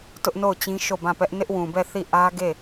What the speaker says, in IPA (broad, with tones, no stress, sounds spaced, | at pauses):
t ʊ˦ ʔ n o˦˨ ʊ̯ t͡ɕ ĩ˦ ʃ o˦˨ b ã˦˨ p ɛ˦ ʔ n ɪ˦ ʔ w ũ˨ b ɛ˦˨ θ i˦˨ ʔ ä˦ ɡ e˦˨